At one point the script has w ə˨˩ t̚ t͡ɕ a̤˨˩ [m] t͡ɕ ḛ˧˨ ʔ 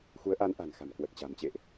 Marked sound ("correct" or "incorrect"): correct